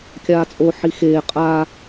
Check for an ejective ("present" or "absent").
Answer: present